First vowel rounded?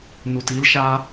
yes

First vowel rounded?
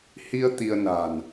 no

